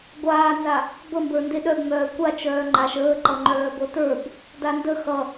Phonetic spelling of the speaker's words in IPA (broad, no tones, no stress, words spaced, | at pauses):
ɡʷaːnza | bəmbə˞ ndeɗœbmœː kʷa t͡ʃœːŋ͡ǃaʃ əːǃʌ ŋ͡ǃœːɡʷœtə˞b | dandə xʌ